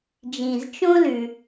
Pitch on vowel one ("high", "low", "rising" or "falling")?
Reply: low